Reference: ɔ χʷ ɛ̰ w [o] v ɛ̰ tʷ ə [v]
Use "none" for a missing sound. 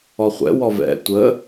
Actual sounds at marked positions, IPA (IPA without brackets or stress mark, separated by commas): ɔ, none